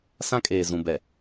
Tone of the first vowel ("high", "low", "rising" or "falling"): high